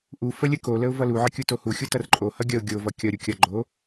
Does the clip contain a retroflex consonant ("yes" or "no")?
no